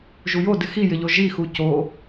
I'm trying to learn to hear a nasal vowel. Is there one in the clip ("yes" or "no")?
no